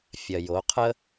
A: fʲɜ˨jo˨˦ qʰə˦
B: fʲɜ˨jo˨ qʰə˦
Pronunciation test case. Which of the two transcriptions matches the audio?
A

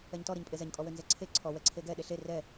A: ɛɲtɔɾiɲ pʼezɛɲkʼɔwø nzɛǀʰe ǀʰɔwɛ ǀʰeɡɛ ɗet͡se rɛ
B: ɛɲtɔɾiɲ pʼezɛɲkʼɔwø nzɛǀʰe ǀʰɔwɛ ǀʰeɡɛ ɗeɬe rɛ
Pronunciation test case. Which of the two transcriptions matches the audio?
B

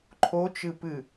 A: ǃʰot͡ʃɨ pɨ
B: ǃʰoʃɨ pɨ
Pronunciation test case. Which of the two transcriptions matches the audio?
A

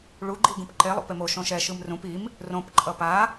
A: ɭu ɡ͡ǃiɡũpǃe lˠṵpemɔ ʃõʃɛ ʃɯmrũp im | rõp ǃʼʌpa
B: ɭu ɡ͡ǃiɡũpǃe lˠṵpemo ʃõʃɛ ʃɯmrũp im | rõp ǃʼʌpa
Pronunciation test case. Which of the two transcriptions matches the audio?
B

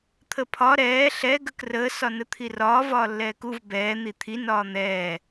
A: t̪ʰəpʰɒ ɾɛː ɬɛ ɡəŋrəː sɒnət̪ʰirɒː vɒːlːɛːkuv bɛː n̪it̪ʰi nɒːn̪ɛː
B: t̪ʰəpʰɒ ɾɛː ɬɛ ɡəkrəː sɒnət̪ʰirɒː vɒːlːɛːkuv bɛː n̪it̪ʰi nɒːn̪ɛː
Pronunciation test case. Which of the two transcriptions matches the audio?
B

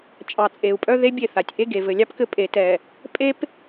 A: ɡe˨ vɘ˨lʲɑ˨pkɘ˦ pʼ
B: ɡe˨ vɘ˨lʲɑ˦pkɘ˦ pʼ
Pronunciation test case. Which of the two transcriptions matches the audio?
B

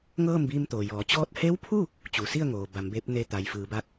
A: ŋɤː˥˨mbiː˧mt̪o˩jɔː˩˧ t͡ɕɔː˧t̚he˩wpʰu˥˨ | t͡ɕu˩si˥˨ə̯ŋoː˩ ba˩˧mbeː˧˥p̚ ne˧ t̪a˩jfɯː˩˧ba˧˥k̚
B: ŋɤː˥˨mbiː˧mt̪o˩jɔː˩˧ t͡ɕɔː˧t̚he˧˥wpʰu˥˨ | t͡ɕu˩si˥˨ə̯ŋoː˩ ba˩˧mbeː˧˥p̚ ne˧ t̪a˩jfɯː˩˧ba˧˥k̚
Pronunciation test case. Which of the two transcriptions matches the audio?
B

